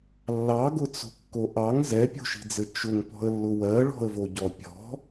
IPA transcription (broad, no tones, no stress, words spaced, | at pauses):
lːɑɡʊt͡so̤kːo ʔɑŋ zɛpʲo̤ʃi̤d͡zɘ t͡ʃʊŋpɔ̤ə̯lːʊ wɜɭɔ̤ə̯voɟɔ pʲɔ̤